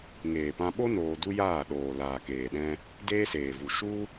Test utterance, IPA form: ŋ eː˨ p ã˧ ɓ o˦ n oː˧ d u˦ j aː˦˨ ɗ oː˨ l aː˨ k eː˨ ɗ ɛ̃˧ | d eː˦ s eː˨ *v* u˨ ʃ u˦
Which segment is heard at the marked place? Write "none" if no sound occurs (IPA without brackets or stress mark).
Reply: v